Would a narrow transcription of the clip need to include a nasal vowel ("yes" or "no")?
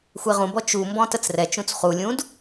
yes